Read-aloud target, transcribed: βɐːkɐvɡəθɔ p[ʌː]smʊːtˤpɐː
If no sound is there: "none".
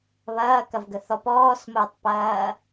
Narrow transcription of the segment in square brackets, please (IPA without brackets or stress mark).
ɔː